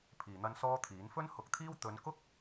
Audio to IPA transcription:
pʰiː˨n̪ɐ˥nsɔː˥t̪ʰiː˨˥n fɵ˥nhʊ˨˥k̚t̪ʰiː˥w t̪ɵ˨˧nkʊ˥k̚

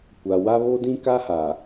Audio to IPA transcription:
kʷa˨wa˦ βo˦dĩ˦ka˦ha˨

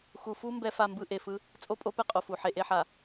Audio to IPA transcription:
xu˨fu˦ mbɛ˦fa˦˨mbɯ˦ ʔe˨fɯ˦ | t͡sʼo˦pʼo˦pɛ˦ qʼo˨fu˨ ħe˨ʔe˦ħa˨

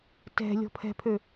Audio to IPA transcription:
tɛ̤ lʲɔ̤pʰɛ̤pʰø

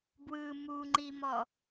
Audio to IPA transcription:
bwɯ muŋ͡ǃimɔ

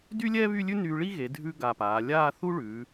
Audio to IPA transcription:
dy˥lʲɛː˥βy˥˧lʲʉ˥ nyː˧ɭi˥ ɣe˩˧dʱʉ˧ ɡa˧˩paː˩˧ lʲaː˥˧θu˥ɭʉː˩˧

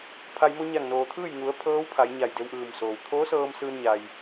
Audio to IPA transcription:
pʰa˩jmo˧ ɲa˧˩ŋnoː˩t̪ʰɯː˥˨j ŋu˩˧ə̯ pʰɤː˧˥wpʰa˩˧j ɲa˧˩jde˧wʔɯː˧˩msoː˩w t̪ʰoː˧˥sɤː˧m sɯː˧nɲa˩j

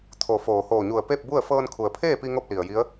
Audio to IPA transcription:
t̪ʰo˧˩ foː˩hoː˧˩ɲu˧˩ə̯ pe˥˨p̚bu˥˨ə̯ fɤː˧nkʰu˩ə̯pʰeː˥˨pi˧ ŋo˥˨p̚li˩ə̯ji˧˥ə̯

